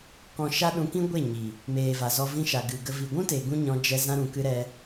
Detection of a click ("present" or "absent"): absent